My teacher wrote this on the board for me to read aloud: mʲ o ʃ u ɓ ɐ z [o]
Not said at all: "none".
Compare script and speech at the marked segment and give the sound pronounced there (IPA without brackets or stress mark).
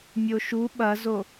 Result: o